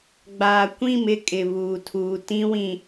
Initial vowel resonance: oral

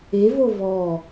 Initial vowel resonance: oral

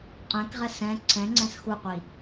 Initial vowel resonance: nasal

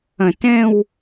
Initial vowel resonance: nasal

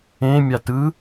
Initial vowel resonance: nasal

